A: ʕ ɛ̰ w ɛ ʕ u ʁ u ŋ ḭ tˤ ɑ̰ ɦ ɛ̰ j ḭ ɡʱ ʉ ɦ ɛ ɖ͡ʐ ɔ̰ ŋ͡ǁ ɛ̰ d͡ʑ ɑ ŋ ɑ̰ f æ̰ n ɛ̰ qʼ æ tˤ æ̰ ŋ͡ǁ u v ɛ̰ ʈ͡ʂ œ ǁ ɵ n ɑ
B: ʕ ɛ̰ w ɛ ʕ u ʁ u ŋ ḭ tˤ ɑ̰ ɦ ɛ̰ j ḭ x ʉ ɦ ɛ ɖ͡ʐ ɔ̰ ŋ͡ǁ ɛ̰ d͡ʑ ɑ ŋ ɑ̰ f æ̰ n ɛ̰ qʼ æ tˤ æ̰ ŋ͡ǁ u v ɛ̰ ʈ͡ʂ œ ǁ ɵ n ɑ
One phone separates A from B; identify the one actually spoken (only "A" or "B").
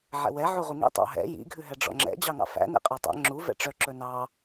A